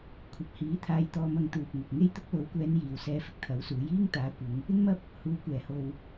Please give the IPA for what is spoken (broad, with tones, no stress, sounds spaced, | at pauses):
kʷʰ ɐ˨ p̚ h iː˨˥ t̪ʰ aː˧ j t̪ ɔː˧ m ɐ˧ ŋ t̪ uː˨ p̚ ŋ ɐ˨ k̚ ŋ e˥ j t̪ ʊ˧ k̚ l o˨˥ w kʷ ɛː˨˧ n j iː˨ w s ɛː˧ f ɪ˧ k̚ t̪ʰ ɐ˨˥ w s uː˨˥ j iː˥ ŋ t̪ aː˨˥ kʷ ɪ˨˧ ŋ | ɪ˥ ŋ m ɐ˥ p̚ | h uː˨˥ kʷ ɛː˨˩ h o˨ w